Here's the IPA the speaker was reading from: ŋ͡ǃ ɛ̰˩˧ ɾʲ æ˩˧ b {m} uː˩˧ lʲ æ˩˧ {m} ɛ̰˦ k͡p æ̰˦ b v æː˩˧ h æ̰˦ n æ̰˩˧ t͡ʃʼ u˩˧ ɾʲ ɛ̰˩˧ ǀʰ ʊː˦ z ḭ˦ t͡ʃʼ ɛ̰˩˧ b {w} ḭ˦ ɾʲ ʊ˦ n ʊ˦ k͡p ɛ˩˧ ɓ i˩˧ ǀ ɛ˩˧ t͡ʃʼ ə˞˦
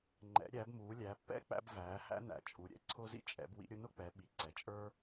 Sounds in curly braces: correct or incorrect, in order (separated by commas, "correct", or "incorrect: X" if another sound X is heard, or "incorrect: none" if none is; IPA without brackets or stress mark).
correct, incorrect: pː, correct